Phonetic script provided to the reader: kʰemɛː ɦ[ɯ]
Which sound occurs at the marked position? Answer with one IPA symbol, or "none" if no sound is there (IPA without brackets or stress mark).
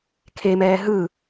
ɯ